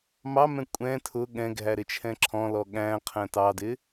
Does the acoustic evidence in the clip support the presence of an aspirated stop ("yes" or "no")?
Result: yes